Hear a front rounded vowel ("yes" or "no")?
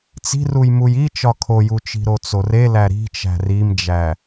no